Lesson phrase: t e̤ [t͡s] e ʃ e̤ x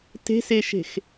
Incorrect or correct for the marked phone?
incorrect: s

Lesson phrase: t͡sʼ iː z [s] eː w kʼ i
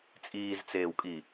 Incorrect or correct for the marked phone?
incorrect: t͡s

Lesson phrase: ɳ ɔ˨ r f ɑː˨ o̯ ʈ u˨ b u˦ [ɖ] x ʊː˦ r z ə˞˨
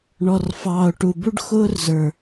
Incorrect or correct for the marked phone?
correct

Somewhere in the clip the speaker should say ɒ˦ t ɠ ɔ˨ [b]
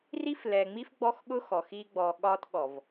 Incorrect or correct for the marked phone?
incorrect: v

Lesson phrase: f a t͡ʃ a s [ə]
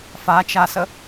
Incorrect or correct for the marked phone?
correct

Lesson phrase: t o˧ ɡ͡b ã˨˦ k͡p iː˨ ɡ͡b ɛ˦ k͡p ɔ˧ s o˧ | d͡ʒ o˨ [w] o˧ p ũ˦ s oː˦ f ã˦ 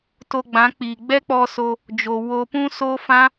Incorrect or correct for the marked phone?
correct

